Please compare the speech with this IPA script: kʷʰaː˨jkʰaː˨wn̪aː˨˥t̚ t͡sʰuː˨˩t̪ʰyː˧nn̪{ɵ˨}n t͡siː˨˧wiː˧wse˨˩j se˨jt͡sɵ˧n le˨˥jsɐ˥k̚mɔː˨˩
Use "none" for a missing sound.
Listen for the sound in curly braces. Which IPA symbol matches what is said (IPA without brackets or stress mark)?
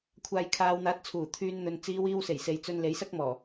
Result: ɵ˨